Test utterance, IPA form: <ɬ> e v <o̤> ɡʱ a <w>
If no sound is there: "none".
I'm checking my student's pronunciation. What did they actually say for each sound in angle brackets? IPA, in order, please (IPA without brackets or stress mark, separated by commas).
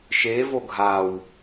ʃ, o, w